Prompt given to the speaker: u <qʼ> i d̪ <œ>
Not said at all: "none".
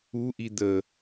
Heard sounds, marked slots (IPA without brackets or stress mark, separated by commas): ʔ, ə